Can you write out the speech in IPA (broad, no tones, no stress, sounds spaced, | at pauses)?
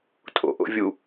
tʼ o̰ ʔ o̰ vʲ u